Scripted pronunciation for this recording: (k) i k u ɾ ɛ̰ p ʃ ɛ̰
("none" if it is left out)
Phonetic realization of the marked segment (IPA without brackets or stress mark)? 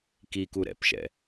k